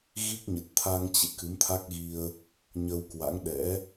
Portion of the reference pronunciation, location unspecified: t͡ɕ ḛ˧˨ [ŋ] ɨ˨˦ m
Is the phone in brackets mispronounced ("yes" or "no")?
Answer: yes